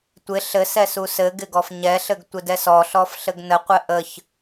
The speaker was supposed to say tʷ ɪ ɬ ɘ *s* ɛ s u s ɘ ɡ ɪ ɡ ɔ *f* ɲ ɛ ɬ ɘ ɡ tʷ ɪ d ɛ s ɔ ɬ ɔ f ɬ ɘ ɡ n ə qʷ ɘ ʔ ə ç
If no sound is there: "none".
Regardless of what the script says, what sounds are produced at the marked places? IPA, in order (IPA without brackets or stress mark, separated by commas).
s, f